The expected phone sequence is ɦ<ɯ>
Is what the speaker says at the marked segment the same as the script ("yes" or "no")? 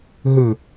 yes